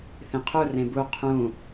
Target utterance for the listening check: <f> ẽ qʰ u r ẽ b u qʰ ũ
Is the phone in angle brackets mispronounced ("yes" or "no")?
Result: yes